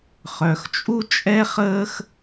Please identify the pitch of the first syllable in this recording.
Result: low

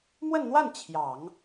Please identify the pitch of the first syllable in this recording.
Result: falling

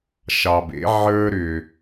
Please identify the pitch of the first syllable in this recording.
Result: low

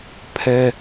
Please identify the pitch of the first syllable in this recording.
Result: high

